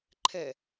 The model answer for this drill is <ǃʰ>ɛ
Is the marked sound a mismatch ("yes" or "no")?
no